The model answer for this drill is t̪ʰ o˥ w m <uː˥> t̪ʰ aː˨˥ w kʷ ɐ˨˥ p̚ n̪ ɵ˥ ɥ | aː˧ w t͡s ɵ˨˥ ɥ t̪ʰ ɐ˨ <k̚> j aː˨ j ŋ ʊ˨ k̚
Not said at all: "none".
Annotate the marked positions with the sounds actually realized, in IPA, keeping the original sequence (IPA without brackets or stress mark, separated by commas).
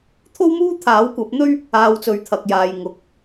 uː˥, k̚